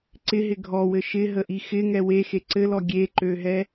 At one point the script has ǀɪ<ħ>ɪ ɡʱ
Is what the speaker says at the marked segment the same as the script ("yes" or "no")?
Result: no